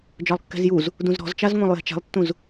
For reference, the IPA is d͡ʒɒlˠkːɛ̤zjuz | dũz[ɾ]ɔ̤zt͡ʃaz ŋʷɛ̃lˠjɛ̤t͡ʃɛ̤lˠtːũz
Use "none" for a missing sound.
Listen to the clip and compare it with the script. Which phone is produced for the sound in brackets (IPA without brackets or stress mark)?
ɾ